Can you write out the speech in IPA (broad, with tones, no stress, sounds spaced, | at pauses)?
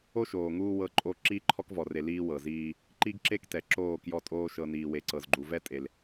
o˦ ʃ oː˨ ŋ uː˦ w ɤ˦ ǃʼ o˦ ǁ iː˦ ǃʰ ɔ˦ k v ɔ˨ r e˨ l iː˦ w ɤ˨ z iː˦ | ǃ i˦ ɡ ǁ e˦ k t ɛ˨ ǁ oː˦˨ k j ɔ˦˨ tʼ oː˦ ʃ ɤ˨ n iː˨ w e˨ ǀ ɤ˨ z ɡ͡ǃ u˨ v ɛ˦ tʼ e˨ l